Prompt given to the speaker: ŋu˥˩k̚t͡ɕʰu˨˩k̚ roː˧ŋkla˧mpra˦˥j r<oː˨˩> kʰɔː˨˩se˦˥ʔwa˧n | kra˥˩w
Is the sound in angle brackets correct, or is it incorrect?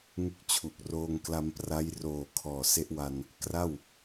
correct